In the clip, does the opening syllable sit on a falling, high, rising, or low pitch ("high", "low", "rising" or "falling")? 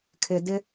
low